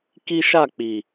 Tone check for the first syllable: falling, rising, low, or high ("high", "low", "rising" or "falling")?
high